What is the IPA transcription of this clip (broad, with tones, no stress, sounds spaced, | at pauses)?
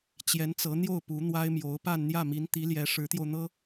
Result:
t͡ɕ j ɛ˧˥ n t͡s ɤ˧˥ n̪ j o˥˩ ʊ̯ p u˧˥ n̪ w a˥ ɪ̯ m j o˧˥ ʊ̯ p a˥˧ n n̪ j ä˥˩ m i˧˥ n t̪ i˧˥ l j ɛ˧˥ ʂ ɻ̩˧˥ t̪ j o˧ ʊ̯ n̪ ɤ˥